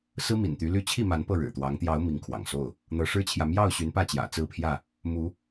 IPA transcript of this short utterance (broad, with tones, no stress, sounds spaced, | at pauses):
s ɹ̩˦ m ḭ˨˩ n t̪ y˨˦ l y˥˨ t͡ɕʰ i˥˨ m a˨˦ n p ɤ˥˨ ɻ ɻ̩˨˩ t̪ w ɑ˨˦ ŋ t̪ j ɑ˨˦ ʊ̯ m i˨˦ ŋ kʰ w ɑ̰˨˩ ŋ s o˥˨ ʊ̯ | n̪ ɤ˨˦ ʂ ɻ̩˦ t͡ɕʰ j ä˨ m j ɑ˥˨ ʊ̯ ɕ y˨˦ n p ä˥˨ t͡ɕ j ä̰˨˩ t͡s ɹ̩˥˨ pʰ j ä˥˨ | m u˨˦